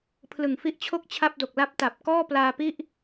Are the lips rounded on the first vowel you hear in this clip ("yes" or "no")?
no